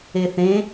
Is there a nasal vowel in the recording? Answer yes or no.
yes